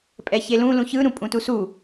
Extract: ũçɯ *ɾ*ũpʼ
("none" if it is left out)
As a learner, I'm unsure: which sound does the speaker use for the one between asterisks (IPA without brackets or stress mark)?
ɾ